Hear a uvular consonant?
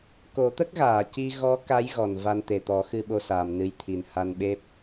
no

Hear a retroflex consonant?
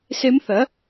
no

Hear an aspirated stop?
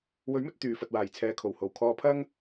yes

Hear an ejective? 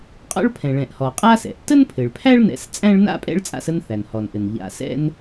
yes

